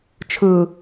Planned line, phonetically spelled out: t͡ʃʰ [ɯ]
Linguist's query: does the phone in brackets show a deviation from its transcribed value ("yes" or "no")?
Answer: no